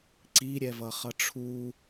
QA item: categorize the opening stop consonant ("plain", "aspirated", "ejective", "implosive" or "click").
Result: click